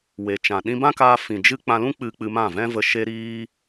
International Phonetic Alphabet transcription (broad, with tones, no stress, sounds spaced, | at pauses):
w e˨ t͡ʃ ã˨ ɗ ĩ˧ b ã˦ k aː˧ f ĩ˨ d͡ʒ ɨ˦ k͡p ã˧ l ũ˦ k͡p ɨ˧ k͡p ɨ˧ m ã˦˨ v ɛ̃˦ v ə˧ ʃ e˧ ɾ iː˧